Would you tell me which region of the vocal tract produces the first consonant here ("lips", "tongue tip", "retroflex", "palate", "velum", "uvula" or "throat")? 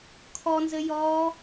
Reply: velum